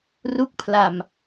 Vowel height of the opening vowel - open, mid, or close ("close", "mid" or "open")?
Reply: close